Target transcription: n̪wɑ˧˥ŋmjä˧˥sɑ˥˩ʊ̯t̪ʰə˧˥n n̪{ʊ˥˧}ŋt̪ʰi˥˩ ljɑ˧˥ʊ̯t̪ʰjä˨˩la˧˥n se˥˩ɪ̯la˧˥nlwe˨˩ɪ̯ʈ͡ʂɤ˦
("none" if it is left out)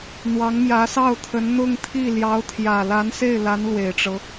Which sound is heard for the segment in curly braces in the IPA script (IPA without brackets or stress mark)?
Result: ʊ˥˧